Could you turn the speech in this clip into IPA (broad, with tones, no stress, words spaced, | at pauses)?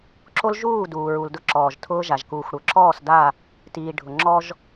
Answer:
ǁo˦lʒuː˦˨ duː˨ɹu˨ldʊ˦ǁɔː˨ʒ tʰʊː˦ʒa˨ʒ kuː˨xʷɽʊ˨ ǁɔː˦˨sda˦˨ | tiː˨ ɖʱʊ˨ŋ͡ǁɔ˦ʒ